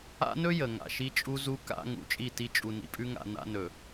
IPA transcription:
a̰˦nɵ˦ jə˨ŋa̰˨ ʃi˦t͡ʃʼu˦zu˦ ka̰˦ ŋṵ˨t͡ʃʼi˦˨ti˦ t͡ʃʼu˨nḭ˨pʼʉ˦ŋa̰˨ na̰˦nɵ˨

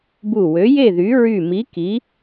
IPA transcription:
bu˧˩wø˨˥je˥˨ðy˨˥ ɹy˧˩mi˨˥ ki˨˥

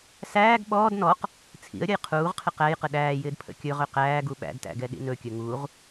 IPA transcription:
sæːɡ ɓɔːd nɔq | t͡sʰḭə̯ɾʲəj qʰuːʁqʰɪ qæjqə ɗæːjɪːd pʰə̰kʲɵʁɵ qæːɡu ɓæ̰dtæ̰ ɡɛɗḭnɵkʲɵ ŋuʁ

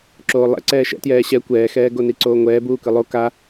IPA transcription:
ǁoːlˠɛ̰ǀɛː ʃɛ̰tjɛː ɕɛ kʷɛːxɛː ɡoniǀoːŋʷɛː buːkɯlˠo ka

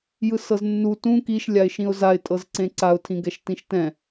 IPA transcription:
jɯsɤznːu tũ kiʃ lʲaɪ̯ʃĩʊ̯zaɪ̯ tʼɤzǀẽǀaʊ̯ tʰĩɡɛʃtĩʃtɛ̃

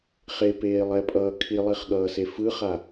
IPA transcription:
χepeːlˠɛpʼʌː kʰilˠiχɠʌːse fɯχa

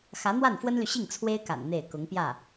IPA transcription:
xä˧˥n̪wa˥˩nfwə˥nly˨ ɕi˥˩ŋt͡sʰwe˥ɪ̯ka̰˨˩n n̪e˥˩ɪ̯ kʊ˧˥ŋpjä˥˩

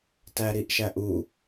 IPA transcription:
tæɾiʔʃæʔu

